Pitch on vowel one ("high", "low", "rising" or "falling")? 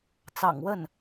low